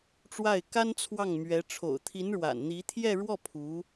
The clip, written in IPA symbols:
ʈ͡ʂwa˥˩ɪ̯ka˥nt͡sʰwɑ˥˩ŋmɥɛ˧˥ ʈ͡ʂʰo̰˨˩ʊ̯t̪ʰi˧˥nɻwa̰˨˩n n̪i˧˥t̪ʰjɛ˥˧ ɻwɔ˥˩ pʰu˧˥

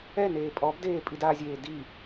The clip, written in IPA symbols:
ɛneː pʼɔbdeːpʼid azʲeː di

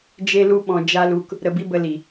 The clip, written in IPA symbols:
d͡ʒe˦lu˦ ɓɔ̃˧ d͡ʒa˦lu˧k | ɾə˧bi˦bə˧ li˨

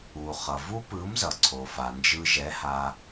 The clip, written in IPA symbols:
u˩χʌ˩ vu˦˥pɯ˨˥mzʌ˩ ǀʰo˩fa˩nd͡ʒɯ˧ ʒɛ˨˥ ha˧

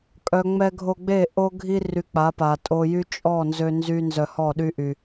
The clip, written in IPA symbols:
kʼœ˨ ŋ͡mɛ˧ɡʱo˧ɡ͡be˦˨ ʔo˦ɡʱi˦ ry˧k͡pa˨˦pa˨ tʼo˧jy˦ t͡ʃʼɔ˦˨ nzø˦nzy˦ nzœ˧hɔ˦˨ɗy˦ ʔy˧

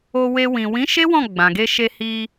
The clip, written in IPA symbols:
o˧we˧ wĩ˨ wĩ˨˦ ʃe˦wɔ̃˦˨ ɡ͡bã˨ɡe˧ʃe˧ hi˧

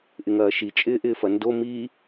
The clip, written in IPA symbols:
ʔɪŋɐːʃi t͡ʃʼɪːʔɪːfɐndo mi

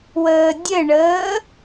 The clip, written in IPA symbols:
wəːdʲɘɳəː

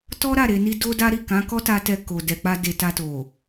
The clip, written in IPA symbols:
tɔ˦ɾa˦˨ɾe˨ni˧ do˦da˦ɾi˦˨ kã˨˦kɔ˦ta˧tɛ˧ ko˨ dɛ˨k͡pa˧ de˨ ta˧to˨

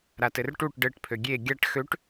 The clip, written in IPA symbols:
ɾatɘrʈuʈ ɖɘʈ pʰøɡʲe ɡʲaʈ xøʈ

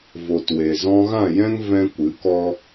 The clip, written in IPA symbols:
vo˨twe˨ zɔ̃˧ɣã˦˨jɛ̃˦ŋ vɛ̃˦kʷɨ˨˦kɔ˦

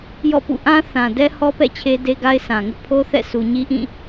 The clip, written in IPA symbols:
jɔ̰˦˨pṵ˦˨ ʔã˦ θã˨dɛ˦hɔ˦pɛ̰˦˨ t͡ɕʰe˦de˦ɡa˦ɪ̯sʰã˨ ŋʊ˦ʔpʰo˦ θɛ̰˦˨ su˨ɲi˦ʔĩ˦˨

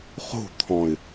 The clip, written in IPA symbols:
χo̤t̪ʰɔ̃ɪ̯

